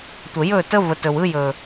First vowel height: mid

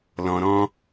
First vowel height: mid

